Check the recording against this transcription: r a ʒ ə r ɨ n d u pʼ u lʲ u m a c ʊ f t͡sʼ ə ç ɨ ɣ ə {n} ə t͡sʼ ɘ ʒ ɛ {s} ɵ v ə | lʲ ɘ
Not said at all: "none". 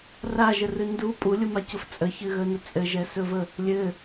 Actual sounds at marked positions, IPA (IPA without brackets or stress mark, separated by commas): n, s